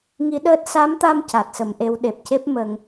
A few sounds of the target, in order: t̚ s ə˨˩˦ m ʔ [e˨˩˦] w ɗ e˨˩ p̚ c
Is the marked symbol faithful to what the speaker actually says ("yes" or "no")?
no